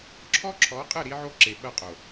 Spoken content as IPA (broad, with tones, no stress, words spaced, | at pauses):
ǁʰɔ˦ǁʰɔ˨˦qʼɘ˦˨ ɾi˦ʕo˦ ǁe˨ɓɐ˦˨qʼo˨